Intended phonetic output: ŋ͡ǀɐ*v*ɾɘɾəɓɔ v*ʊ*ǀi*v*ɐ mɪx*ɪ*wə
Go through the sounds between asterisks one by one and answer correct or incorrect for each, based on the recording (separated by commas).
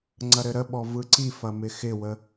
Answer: incorrect, incorrect, incorrect, correct